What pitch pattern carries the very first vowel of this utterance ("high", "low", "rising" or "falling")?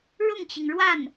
falling